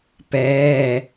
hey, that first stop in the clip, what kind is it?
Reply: plain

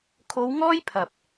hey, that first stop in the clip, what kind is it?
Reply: aspirated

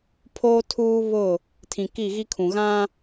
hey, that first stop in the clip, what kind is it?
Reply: aspirated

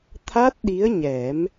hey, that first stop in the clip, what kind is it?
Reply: aspirated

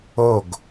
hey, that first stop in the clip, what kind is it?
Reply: plain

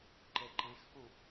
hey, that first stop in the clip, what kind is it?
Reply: click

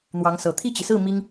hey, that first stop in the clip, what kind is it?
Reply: aspirated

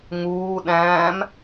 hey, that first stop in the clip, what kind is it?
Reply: implosive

